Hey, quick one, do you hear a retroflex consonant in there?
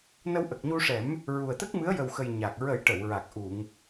yes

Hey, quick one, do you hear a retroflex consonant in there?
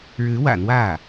yes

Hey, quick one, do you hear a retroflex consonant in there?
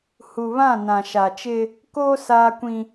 no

